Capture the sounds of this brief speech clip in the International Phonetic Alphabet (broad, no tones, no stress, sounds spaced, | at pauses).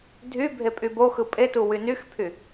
dʱ y bʱ e pʼ y b o x ɯ pʼ e t u w y n y x pʰ y